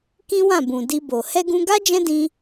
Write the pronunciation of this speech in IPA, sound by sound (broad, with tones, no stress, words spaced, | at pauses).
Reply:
kĩ˦wã˦˨bũ˨ di˧bo˨ hɛ˧ɡũ˧ɡa˦ d͡ʒɛ̃˦dĩ˧